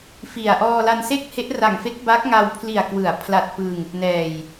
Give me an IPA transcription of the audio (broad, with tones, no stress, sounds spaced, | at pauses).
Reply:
f i˨˩ a̯ ʔ ɔː˧ l a˧ n s e˥˩ k̚ h e˦˥ ʔ r a˨˩ ŋ f e˦˥ k̚ b a˦˥ k̚ ŋ a˧ w pʰ l i˨˩ a̯ k w ɯ˩˦ a̯ pʰ l a˨˩ t̚ p ɯ˧ ŋ | n ɛː˨˩ j